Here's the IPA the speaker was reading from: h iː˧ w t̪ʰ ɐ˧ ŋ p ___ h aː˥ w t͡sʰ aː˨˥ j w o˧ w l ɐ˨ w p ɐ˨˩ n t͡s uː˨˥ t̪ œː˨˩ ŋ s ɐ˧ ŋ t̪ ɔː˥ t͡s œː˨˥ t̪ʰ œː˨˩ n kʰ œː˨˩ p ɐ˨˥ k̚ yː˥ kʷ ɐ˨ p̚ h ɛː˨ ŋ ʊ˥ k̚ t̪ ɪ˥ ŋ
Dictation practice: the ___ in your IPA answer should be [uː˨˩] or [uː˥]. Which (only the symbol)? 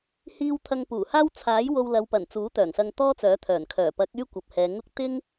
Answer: uː˨˩